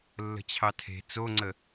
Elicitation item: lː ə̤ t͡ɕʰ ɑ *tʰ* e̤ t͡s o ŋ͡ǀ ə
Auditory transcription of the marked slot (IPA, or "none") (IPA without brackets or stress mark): tʰ